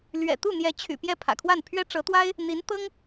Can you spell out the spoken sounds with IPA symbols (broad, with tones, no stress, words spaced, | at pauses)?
lɥɛ̰˨˩t̪u˥˩n̪jɛ˧˥ t͡ɕʰy̰˨˩ pjɛ˥˩pʰä̰˨˩kʰwa˥˩npʰɥɛ˥ ʈ͡ʂɤ˧˥t̪wa˥ɪ̯ | n̪i˧˥n t̪ɤ˥ŋ